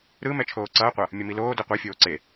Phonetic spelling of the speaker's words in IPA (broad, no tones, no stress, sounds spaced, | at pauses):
ɾ ɯ m ɛ t͡ʃʰ oː ǀ ʌː qʷ ʌ | mʲ ʌ m i l oː d o qʷ ɛ fʲ oː ǀ e